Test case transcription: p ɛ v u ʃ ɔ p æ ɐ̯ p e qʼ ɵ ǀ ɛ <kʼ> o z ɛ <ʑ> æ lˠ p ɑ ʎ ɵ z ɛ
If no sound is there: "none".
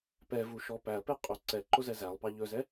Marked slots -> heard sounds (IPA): ǃ, z

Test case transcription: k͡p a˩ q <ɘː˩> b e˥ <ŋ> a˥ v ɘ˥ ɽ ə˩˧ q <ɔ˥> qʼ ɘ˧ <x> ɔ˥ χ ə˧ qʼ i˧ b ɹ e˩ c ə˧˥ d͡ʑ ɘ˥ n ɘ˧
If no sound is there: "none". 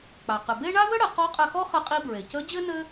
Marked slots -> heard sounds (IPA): ɘ˩, ɳ, ɔ˧˥, x

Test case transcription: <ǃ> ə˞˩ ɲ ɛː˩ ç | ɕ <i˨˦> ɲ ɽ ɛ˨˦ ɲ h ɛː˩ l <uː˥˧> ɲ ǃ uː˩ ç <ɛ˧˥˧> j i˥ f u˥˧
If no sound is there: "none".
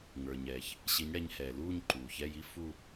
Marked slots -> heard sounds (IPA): ŋ, i˨˦, uː˥˧, ɛ˧˥˧

